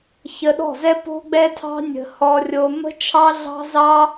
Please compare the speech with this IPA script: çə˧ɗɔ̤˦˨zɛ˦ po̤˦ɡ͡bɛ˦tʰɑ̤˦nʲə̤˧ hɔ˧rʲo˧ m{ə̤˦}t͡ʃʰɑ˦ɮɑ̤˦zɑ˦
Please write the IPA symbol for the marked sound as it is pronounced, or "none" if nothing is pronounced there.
ə̤˦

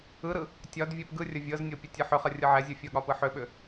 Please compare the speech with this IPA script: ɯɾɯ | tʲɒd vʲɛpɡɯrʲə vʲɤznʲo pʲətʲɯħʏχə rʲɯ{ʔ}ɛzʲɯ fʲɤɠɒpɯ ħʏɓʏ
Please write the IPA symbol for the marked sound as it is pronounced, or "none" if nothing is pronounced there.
ʕ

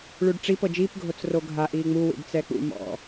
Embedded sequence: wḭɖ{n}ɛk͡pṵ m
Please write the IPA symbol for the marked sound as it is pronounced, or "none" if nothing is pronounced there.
t͡s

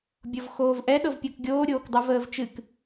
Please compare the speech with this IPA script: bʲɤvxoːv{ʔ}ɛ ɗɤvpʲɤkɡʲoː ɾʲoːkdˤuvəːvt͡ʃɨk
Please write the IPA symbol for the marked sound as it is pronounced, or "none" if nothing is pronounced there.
ʔ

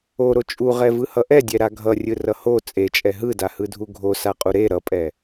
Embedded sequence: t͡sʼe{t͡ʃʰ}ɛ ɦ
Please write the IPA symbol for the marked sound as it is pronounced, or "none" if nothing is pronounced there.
t͡ʃʼ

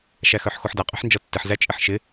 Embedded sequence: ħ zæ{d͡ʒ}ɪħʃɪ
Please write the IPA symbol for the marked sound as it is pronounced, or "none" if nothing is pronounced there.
t͡ʃʼ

